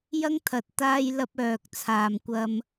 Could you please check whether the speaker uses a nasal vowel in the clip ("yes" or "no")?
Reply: no